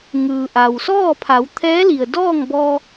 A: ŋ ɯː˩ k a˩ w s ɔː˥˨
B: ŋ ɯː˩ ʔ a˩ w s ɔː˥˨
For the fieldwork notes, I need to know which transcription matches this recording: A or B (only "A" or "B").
B